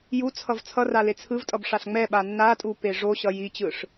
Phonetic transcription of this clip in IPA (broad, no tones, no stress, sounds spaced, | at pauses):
j u t͡sʰ ʌ v t͡sʰ ʌ r a l e t͡sʰ ɯ v tʼ ʌ b ʂ a ɬ ŋ͡m ɛ ɓ a nː a tʼ u p e ʐ o ɕ ʌ j i t͡ɕ ɯ ʂ